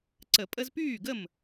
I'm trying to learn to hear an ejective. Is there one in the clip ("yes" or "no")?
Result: yes